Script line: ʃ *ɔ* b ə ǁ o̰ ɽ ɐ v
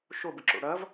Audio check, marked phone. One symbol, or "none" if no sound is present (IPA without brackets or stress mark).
o